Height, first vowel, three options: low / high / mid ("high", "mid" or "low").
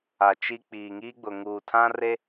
low